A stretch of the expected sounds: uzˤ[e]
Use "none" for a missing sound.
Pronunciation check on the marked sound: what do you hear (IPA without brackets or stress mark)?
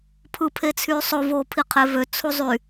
y